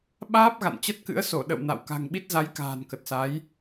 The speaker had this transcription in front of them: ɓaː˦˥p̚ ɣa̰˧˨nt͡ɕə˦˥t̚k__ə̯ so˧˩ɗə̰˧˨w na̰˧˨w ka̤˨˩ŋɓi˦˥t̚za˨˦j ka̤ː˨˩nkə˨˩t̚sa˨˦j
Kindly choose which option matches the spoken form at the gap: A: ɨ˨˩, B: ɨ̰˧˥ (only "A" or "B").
B